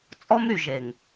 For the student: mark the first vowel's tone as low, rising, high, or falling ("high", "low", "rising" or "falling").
high